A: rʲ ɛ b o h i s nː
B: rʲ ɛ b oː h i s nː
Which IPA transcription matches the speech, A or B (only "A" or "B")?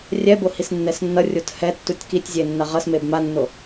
A